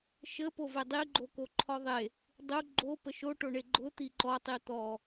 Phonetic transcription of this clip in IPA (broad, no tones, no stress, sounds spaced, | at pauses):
ʃ ə p o v e dˤ i ɡ͡ǃ o k o ǃʰ ɔ ðˤ e | dˤ u ɡ͡ǃ o p ə ʃ o ʈ o ɳ e ɡ͡ǃ ʊ t̪ i ǃ ɔ tˤ i t̪ ɔ